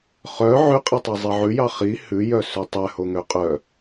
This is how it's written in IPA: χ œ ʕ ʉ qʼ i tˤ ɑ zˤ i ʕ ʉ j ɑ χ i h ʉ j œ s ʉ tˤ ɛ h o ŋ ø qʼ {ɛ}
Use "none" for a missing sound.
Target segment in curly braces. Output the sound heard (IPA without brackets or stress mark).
œ